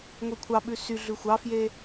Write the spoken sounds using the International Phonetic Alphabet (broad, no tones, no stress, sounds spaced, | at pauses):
ŋʷ e kʷʰ ɑ ɓ ʉ s y ɮ ʉ xʷ ɑ f j e